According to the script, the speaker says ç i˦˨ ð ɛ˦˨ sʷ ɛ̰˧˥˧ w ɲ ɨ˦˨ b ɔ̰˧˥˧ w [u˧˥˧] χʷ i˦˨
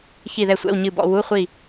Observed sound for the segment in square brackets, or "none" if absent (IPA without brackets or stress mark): u˧˥˧